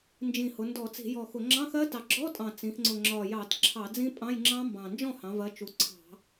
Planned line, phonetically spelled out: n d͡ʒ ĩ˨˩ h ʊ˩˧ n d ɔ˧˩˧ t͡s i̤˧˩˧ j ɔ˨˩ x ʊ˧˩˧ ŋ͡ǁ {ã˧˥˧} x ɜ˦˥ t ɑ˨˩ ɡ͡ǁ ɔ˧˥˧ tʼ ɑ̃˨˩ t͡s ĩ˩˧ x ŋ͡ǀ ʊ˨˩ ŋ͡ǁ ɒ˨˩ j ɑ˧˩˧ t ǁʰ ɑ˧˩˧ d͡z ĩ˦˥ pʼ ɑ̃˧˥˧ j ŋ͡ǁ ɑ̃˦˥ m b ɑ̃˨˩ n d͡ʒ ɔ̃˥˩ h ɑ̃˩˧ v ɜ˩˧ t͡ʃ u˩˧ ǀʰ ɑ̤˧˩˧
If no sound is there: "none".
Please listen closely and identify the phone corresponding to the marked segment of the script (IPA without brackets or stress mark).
ɑ̃˧˥˧